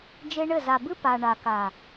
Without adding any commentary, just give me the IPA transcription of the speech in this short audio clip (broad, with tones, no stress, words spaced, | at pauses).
d͡ʒe˦ɳɘ˦˨ za˨bɨ˦ pa˨ ɳa˨ ka˨